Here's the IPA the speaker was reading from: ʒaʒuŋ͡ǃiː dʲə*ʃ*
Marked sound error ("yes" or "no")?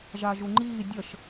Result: no